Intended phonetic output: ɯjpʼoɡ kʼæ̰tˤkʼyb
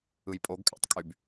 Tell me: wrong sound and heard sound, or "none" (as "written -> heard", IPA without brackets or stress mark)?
none